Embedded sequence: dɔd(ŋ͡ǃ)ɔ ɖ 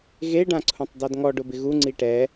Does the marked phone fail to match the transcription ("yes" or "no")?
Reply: yes